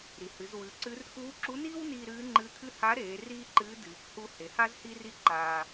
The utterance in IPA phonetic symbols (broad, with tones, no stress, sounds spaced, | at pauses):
ɾ i˩ h ɨ˩˧ z w ʉ˩˧ ǀ ɨ˧˥ r k uː˧˥ ǁ u˧˥ n iː˥ w n iː˧ ɾ ɨː˧˥ ŋ͡ǃ ɨ˧˥ t̪ʰ ɨ˥ h a˧˥ ɾ eː˩˧ r iː˥ ǃ ɨː˧˥ d ɨː˩ k h u˧ h e˩ h a˥ z h i˥ r i˥ ǃ aː˧